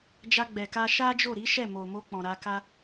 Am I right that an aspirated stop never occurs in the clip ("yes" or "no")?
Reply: yes